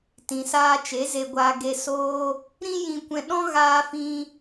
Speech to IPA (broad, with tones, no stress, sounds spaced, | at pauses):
t ĩ˨ s aː˧ t͡ʃ e˨˦ z e˧ ɡʷ aː˧ ɡ e˧ s oː˦ | ɾ ĩ˦ j ĩ˧ kʷ ɛ̃˧ ɗ ɔ̃˦ ɣ aː˦ f ĩ˦